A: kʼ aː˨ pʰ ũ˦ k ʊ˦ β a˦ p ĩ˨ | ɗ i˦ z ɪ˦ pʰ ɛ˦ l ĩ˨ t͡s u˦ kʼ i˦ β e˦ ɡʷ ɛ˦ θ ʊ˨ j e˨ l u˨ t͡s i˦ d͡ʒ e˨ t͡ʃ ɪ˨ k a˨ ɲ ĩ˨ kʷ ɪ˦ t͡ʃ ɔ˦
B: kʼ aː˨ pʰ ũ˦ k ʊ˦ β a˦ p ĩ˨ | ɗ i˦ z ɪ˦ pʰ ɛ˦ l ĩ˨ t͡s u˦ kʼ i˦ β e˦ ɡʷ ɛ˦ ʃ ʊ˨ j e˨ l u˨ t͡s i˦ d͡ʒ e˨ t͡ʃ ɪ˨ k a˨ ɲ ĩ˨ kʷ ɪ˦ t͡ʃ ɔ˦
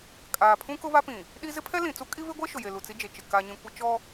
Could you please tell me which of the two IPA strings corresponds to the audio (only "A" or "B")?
B